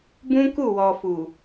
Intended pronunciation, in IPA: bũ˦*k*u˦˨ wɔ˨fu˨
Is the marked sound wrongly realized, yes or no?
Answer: no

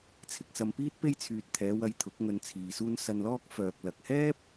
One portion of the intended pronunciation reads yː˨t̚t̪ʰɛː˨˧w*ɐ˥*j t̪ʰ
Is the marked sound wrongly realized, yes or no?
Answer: yes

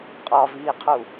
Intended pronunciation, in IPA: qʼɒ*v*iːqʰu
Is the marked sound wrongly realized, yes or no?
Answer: no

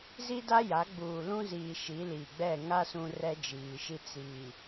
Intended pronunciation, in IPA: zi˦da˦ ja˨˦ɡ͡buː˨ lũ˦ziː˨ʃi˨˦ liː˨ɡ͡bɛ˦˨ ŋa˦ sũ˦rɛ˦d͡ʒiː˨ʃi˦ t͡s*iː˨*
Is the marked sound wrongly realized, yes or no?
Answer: no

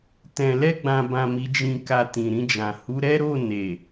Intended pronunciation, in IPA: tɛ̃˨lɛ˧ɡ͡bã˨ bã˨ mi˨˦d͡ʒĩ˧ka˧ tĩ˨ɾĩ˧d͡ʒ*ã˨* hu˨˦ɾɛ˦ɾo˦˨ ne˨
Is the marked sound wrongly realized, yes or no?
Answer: no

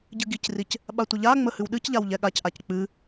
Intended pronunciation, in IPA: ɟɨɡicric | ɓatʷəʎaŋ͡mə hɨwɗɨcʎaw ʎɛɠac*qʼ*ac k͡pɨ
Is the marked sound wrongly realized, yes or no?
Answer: yes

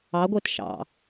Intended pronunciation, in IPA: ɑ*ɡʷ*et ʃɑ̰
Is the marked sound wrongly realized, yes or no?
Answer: no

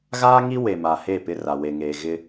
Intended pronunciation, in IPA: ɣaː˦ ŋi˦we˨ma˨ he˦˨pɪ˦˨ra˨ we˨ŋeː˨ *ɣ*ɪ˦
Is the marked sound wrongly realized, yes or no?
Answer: no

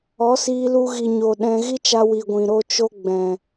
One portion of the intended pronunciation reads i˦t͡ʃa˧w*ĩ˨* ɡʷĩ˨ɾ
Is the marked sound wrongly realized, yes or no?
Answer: yes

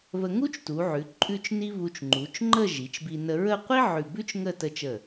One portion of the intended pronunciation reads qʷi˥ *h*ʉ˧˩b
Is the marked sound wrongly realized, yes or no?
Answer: yes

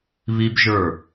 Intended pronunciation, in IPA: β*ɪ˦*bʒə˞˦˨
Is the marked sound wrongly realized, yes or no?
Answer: yes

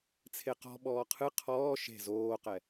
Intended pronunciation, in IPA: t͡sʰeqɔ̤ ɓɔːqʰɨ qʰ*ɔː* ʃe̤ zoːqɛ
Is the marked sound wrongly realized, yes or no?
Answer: no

